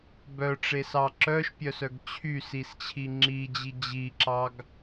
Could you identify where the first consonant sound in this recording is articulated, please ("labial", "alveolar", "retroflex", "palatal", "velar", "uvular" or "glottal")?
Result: labial